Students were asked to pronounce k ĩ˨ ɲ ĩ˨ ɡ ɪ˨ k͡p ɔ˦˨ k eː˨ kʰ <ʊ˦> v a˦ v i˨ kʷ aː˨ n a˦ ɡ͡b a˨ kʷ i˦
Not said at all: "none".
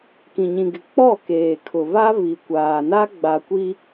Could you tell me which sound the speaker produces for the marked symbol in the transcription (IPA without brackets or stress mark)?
ʊ˨